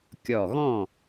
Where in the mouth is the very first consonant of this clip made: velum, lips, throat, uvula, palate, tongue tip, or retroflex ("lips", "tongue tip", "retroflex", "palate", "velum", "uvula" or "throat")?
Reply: velum